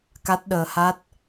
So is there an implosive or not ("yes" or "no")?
yes